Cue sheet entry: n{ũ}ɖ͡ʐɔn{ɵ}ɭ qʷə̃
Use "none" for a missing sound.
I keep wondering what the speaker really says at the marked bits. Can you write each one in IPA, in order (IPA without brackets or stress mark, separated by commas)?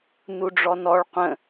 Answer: u, ɔ